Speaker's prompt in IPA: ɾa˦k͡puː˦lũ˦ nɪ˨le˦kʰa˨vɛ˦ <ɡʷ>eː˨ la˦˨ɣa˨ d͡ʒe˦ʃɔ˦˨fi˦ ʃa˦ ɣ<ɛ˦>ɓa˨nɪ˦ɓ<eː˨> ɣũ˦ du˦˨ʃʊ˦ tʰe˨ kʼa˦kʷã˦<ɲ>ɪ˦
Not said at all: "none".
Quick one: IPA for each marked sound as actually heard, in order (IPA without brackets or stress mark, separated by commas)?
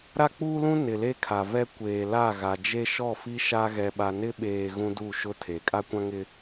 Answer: kʷ, ɛ˨, eː˨, ŋ